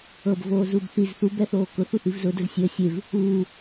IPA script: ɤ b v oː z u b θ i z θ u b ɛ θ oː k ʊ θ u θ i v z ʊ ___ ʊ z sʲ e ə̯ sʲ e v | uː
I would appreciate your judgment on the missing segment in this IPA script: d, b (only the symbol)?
d